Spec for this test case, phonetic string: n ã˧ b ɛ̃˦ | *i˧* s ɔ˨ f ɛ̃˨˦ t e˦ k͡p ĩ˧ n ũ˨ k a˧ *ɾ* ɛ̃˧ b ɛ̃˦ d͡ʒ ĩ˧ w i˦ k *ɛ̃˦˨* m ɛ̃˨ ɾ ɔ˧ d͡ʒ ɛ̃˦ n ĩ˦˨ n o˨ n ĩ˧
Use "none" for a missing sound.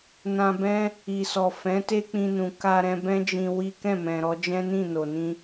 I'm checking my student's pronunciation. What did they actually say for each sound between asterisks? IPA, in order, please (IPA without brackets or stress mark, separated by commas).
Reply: i˨, ɾ, ɛ̃˦˨